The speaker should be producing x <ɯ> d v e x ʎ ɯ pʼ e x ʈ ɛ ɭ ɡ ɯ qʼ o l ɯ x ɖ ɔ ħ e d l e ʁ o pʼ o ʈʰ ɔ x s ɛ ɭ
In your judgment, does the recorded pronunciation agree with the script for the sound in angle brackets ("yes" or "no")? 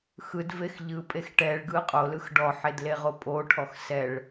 yes